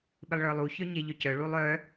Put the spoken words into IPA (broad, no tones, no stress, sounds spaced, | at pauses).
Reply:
ɓ ɪ lˠ ɭ ə˞ lˠ u ç œ ɲ e ʎ œ c œ ɭ u lˠ œ